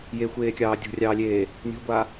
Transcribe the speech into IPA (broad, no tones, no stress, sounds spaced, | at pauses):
j e xʷ eː kʲ ɑː dʲ o̤ rʲ ɑː lʲ eː | nʲ o̤ ɡʷ a